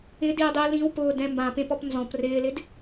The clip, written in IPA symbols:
ɪdiːdˤiː lĩwpʊːdɛ̃ mbãpẽpɔp nzɔ̃p rɪːlɪd

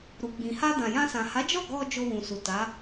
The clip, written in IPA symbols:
ɾu˨ɡ͡bĩ˨ ha˧dã˨jã˧sã˨ ha˨˦d͡ʒɔ˦˨ ɡɔ˧ d͡ʒo˧wũ˨su˨ ta˨˦

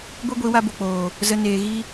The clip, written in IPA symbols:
ɡʷe˦ɡʷi˨˦wa˧bo˨ k͡poː˨ | zə˧ neː˨ɣi˧

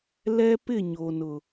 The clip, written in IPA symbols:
lɛ˦pɪ˦˨ɲo˨nʊ˨

